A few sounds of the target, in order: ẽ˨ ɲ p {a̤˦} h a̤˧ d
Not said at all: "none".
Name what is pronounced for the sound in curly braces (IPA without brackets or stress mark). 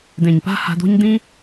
a̤˦